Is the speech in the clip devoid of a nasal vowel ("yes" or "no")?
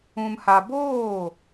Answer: no